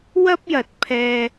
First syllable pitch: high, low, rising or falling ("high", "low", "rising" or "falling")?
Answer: high